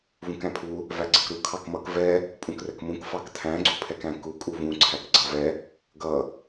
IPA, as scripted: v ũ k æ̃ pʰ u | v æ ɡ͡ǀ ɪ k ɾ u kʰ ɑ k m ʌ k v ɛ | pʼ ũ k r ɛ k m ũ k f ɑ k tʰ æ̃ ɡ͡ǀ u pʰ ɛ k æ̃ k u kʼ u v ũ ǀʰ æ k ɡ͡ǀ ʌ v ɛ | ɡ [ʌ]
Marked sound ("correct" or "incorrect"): correct